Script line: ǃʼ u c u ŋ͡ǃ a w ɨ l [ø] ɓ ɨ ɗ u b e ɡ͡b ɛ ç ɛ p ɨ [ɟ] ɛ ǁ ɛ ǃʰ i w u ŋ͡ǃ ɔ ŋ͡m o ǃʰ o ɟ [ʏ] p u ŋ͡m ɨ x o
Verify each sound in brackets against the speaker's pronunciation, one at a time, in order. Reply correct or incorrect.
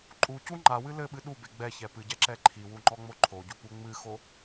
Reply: incorrect: ɘ, correct, incorrect: u

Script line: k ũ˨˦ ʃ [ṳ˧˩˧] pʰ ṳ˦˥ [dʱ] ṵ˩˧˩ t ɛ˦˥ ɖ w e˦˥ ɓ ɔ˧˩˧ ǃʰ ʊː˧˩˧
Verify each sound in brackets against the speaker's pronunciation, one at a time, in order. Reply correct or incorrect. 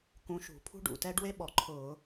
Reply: correct, incorrect: ɖ

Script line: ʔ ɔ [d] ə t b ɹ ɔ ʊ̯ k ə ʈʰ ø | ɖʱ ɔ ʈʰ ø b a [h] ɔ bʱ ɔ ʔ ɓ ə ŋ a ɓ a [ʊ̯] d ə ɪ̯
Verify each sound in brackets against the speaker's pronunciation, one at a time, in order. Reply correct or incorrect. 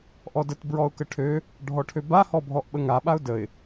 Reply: correct, correct, correct

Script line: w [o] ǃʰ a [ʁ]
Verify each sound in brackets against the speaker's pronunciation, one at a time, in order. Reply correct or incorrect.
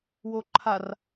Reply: correct, incorrect: r

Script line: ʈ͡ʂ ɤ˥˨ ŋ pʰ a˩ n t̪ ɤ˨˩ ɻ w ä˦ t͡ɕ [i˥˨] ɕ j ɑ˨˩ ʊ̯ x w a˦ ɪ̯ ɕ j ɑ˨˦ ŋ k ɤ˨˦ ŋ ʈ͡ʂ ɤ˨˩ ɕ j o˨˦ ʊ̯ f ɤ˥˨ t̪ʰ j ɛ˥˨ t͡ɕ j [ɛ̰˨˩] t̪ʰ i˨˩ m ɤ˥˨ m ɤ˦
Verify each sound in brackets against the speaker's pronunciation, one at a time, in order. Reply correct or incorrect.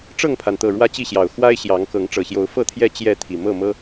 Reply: correct, incorrect: ɛ˥˨

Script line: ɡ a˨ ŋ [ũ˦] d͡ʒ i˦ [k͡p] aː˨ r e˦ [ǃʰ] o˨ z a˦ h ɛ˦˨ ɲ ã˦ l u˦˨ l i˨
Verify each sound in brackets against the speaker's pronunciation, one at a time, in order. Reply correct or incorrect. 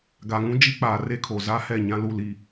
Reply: correct, correct, incorrect: kʰ

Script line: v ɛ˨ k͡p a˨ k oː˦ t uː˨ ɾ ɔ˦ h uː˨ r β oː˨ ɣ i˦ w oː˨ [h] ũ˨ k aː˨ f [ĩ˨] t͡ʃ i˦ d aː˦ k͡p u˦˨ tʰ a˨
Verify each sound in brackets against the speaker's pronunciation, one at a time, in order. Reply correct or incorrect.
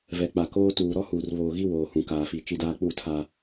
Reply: correct, incorrect: i˨

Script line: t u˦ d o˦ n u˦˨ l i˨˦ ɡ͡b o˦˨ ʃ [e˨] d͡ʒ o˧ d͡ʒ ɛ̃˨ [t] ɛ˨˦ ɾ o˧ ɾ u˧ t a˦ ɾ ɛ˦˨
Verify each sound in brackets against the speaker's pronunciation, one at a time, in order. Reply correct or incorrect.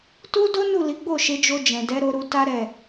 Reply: incorrect: e˨˦, incorrect: d

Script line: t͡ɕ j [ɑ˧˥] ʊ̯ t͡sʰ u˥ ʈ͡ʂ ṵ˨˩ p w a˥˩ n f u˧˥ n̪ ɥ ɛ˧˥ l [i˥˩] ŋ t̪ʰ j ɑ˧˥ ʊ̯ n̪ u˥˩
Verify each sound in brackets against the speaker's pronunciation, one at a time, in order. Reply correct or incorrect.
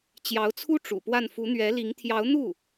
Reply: correct, incorrect: i˧˥

